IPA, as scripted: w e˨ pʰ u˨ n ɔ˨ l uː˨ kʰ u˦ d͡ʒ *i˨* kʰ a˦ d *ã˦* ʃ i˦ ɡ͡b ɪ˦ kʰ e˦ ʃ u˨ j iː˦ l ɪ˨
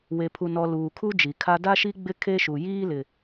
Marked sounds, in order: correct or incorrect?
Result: correct, incorrect

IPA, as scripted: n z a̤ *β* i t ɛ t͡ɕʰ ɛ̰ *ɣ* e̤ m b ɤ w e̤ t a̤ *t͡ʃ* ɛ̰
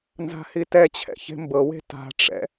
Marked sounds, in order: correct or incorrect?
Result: incorrect, incorrect, incorrect

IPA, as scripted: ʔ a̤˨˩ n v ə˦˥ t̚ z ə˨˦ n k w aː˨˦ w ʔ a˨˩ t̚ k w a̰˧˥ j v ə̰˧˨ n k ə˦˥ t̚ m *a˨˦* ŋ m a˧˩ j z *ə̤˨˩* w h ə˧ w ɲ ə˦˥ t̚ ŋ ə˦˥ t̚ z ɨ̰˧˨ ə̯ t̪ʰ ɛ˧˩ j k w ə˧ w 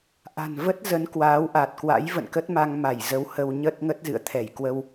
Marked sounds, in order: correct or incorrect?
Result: incorrect, incorrect

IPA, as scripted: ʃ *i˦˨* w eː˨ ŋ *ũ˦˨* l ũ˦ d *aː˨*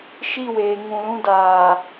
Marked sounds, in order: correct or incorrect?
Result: correct, incorrect, correct

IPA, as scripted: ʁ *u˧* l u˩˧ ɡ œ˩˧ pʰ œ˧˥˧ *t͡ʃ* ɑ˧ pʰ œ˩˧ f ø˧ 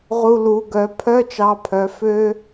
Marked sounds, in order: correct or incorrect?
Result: correct, correct

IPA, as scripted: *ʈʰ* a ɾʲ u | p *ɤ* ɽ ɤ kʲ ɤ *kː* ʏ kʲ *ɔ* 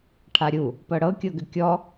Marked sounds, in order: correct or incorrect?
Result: correct, correct, incorrect, correct

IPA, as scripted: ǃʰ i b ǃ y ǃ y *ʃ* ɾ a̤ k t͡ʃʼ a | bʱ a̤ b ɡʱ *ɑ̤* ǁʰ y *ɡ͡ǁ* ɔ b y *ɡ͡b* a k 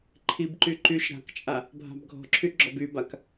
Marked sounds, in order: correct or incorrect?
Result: correct, incorrect, correct, incorrect

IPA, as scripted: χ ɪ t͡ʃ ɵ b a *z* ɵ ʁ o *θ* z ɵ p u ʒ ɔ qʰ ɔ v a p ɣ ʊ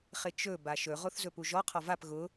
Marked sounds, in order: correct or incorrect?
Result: incorrect, correct

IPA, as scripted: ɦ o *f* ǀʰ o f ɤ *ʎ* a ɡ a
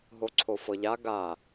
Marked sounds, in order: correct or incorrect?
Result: incorrect, correct

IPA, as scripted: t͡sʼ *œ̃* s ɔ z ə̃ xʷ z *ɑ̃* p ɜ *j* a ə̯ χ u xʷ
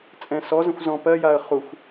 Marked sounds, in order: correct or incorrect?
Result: incorrect, incorrect, correct

